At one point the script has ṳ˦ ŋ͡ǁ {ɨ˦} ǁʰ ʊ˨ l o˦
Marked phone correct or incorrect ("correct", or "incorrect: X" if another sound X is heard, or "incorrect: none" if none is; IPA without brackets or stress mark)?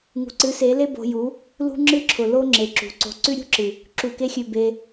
correct